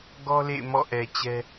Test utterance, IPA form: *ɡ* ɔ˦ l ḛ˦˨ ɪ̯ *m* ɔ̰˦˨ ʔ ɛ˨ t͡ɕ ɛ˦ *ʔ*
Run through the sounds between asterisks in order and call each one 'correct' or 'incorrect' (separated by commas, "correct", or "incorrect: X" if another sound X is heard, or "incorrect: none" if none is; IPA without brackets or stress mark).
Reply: correct, correct, incorrect: none